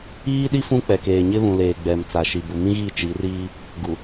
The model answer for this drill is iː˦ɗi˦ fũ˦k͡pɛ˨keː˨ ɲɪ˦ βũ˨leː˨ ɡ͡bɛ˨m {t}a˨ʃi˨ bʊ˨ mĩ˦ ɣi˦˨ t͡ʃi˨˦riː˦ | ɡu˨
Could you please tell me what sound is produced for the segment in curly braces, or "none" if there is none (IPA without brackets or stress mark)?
t͡s